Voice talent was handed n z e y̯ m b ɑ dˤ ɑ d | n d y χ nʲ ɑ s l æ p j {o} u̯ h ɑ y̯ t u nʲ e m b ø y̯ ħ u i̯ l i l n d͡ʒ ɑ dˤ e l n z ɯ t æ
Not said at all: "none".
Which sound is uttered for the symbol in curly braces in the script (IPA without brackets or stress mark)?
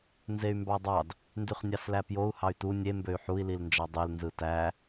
o